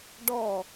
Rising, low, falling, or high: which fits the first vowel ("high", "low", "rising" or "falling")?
falling